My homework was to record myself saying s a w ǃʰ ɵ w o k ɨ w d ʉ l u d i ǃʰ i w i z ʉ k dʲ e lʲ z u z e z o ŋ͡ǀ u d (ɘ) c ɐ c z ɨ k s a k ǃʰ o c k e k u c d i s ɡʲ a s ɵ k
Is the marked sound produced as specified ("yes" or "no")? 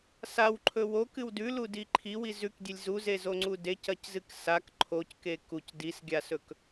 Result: no